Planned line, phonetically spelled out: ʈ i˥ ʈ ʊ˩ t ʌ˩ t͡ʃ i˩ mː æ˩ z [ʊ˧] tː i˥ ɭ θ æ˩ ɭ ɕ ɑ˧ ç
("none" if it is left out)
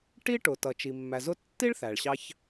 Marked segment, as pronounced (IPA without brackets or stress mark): ʊ˧